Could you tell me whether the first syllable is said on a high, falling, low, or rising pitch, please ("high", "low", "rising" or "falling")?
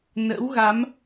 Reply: rising